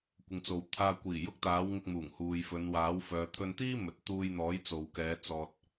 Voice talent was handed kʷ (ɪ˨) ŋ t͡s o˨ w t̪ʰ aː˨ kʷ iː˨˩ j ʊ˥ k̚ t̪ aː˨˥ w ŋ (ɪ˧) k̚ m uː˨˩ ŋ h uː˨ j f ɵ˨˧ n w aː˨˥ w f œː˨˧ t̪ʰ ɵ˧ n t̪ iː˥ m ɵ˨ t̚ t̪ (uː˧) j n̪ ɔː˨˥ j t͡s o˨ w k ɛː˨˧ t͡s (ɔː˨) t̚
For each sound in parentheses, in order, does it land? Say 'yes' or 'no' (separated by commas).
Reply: yes, yes, yes, yes